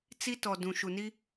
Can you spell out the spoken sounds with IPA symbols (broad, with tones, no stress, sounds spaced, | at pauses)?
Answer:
t͡s i˦ t ɔ˨ d ũ˨ ʃ u˨ n i˦